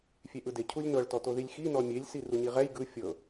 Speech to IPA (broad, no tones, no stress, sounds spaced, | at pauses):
fʲ e ʔ ɯ d e cʰ u lʲ n ɤ ɭ t ɔ t o ð i lʲ x i n ɔ mʲ e lʲ s i r u ɲ i ʁ ɛ j ɡ ɯ fʲ ɤ